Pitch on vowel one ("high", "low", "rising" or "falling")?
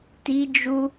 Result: high